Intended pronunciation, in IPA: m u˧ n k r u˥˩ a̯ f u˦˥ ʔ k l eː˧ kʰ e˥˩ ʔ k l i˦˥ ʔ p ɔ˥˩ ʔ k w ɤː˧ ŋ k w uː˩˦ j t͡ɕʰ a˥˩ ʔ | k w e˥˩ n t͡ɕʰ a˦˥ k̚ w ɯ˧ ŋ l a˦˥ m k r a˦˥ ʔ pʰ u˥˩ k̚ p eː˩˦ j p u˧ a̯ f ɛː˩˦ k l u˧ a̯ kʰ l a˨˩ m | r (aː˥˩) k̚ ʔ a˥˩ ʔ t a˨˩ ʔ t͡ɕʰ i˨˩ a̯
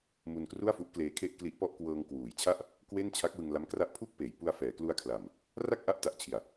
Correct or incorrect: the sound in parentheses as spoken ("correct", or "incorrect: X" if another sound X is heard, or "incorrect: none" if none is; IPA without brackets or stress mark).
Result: incorrect: a˥˩